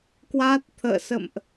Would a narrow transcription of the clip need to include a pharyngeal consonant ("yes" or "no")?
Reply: no